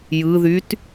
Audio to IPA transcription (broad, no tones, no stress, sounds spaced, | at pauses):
j ɯ ð y t